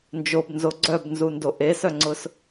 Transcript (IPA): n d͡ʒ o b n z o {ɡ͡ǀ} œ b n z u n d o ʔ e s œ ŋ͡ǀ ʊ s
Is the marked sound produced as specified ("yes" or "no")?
yes